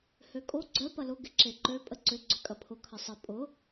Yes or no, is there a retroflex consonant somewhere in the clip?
no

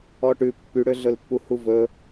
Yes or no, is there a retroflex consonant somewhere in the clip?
yes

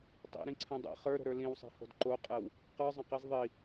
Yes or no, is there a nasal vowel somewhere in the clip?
yes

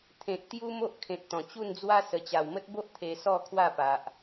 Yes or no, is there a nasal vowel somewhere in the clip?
yes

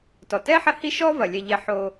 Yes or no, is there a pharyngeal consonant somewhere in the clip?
yes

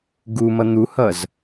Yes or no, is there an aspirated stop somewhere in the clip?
no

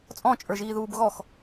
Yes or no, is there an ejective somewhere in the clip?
yes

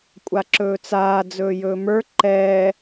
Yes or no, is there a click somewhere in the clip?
yes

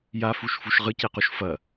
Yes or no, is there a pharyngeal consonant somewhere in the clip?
no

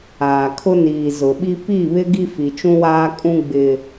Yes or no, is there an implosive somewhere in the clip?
yes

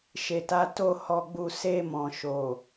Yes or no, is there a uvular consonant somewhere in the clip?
no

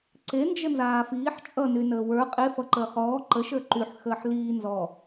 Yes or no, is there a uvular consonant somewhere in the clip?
yes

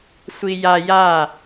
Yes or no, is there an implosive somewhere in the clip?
no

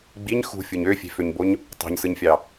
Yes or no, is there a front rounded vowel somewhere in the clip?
yes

